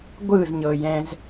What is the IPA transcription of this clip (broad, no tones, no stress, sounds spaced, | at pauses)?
ɡʷ ɯ z ɲ ɤ j ɛ̃ z